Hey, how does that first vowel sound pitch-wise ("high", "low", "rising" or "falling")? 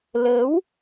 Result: rising